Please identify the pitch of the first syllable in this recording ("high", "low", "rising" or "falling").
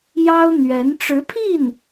high